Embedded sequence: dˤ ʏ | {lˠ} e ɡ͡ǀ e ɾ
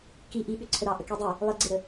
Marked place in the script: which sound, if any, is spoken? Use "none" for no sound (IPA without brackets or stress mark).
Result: lˠ